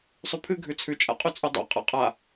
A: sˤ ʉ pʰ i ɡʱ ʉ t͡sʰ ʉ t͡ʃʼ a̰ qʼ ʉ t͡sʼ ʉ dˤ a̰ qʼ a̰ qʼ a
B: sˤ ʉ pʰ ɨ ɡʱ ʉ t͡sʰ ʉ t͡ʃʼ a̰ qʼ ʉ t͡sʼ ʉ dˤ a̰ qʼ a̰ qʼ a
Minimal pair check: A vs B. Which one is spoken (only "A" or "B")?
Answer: B